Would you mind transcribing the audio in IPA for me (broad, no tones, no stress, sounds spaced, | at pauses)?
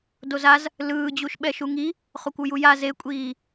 d o z a z | l ɯː d͡ʑ u ʃ ɓ ɛ ʃ u ŋ i | χ o kʷ u j u j a z e kʷʼ iː